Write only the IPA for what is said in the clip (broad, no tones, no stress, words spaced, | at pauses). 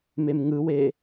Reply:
memŋɯwe